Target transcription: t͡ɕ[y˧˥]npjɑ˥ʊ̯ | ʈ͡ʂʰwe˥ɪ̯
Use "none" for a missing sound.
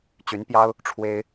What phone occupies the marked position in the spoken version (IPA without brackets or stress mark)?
y˧˥